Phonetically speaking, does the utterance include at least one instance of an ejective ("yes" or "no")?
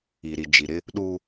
no